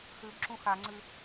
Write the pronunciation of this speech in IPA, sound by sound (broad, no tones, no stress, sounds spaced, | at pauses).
x ʉ b ǁ ũ x a ŋ͡ǀ ɨ